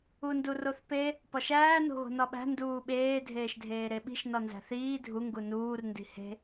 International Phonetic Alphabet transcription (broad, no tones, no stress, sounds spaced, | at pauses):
u n d u r o θ p e | p ɒ ʃ æː n o̤ ɣ o̤ n ɒ ɓ æ̤ n d uː ɓ eː dʱ eː ʃ dʱ eː ɾ e ɓ i̤ ʃ n ɒ n z æ̤ θ iː dʱ u ŋ ɡ u n uː r n d i̤ h e̤